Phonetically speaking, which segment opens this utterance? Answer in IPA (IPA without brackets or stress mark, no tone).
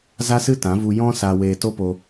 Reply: z